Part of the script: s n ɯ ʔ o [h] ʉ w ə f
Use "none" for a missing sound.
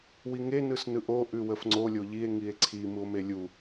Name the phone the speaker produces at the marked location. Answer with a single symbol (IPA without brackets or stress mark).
ʔ